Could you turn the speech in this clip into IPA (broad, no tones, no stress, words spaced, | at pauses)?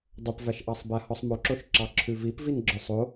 dˤɵpvæʃʔɑsˤ bæhɔsˤmoǁoʃ ǁɑǁʰʉvip vinɡ͡ǁœsˤo